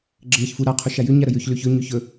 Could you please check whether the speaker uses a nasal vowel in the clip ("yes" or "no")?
no